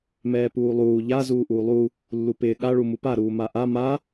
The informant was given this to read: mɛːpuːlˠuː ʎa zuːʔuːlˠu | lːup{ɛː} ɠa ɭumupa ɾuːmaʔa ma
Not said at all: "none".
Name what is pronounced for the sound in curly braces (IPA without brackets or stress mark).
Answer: ɪː